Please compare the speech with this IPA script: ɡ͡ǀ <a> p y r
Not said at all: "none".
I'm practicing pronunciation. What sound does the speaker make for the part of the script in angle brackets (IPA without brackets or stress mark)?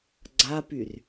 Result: a